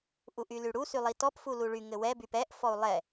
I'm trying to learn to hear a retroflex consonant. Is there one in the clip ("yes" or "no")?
yes